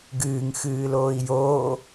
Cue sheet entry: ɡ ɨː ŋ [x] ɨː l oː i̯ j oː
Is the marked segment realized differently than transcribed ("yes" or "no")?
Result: no